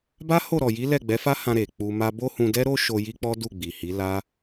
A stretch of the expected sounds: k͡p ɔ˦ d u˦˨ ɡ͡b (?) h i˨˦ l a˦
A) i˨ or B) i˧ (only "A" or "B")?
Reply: A